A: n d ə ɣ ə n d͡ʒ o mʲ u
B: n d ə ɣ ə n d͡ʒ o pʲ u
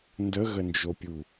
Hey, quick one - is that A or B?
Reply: B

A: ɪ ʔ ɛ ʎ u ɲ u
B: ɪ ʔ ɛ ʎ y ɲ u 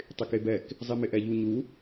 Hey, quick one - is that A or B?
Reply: A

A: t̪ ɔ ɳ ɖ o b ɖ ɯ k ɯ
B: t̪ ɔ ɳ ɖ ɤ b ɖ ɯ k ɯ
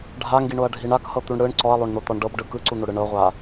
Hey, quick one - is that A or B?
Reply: B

